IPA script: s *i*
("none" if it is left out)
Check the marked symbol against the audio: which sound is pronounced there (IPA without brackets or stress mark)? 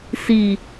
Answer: i